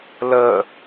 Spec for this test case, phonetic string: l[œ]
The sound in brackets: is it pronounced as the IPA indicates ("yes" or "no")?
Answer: no